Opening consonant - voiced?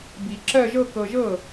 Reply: yes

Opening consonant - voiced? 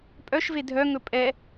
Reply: no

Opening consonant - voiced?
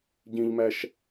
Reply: yes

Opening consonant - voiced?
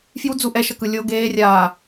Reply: no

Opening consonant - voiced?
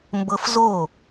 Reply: yes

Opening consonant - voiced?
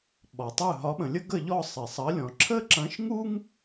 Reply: yes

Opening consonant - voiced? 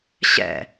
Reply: no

